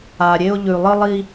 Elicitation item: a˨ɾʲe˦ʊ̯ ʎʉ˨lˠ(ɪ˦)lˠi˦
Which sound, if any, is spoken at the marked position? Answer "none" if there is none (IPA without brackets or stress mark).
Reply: ɨ˦